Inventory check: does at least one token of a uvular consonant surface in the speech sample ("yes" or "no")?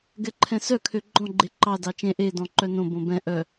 no